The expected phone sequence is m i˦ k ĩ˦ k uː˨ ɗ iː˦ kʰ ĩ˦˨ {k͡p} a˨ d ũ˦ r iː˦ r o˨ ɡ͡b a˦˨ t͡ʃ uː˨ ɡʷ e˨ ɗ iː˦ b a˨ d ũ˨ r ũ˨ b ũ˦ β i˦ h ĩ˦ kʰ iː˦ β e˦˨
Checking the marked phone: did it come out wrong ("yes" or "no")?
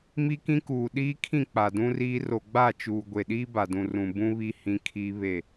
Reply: no